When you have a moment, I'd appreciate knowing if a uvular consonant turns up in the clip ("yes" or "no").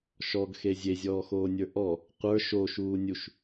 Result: yes